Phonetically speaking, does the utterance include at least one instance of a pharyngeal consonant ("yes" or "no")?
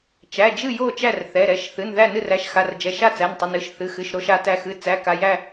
no